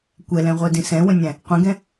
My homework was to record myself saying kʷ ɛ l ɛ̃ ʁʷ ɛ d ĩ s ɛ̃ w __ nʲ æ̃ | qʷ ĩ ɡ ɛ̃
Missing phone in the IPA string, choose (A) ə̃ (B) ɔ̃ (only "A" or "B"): A